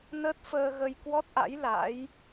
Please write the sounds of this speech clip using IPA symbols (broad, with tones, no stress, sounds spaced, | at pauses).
n ə˦˥ t̚ f əː˧ ɣ ə˧ j k w ɔ˦˥ t̚ ʔ a̰˧˥ j l a̰˧˥ j